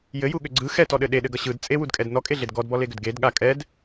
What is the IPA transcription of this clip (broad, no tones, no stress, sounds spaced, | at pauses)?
j ɘ j u ɠ ʏ ɡ͡ǀ ɯ x ɛ t ɔ ɗ ɘ ɗ e ɗ ɘ ɡ ʌ ɕ ɯ d t͡sʼ e w u d kʼ ɛ d n ɔ kʼ e ɮ e d ɡ ɔ d b ɔ l e ɡ ʏ d ɡ e d ɠ a kʼ ɛ d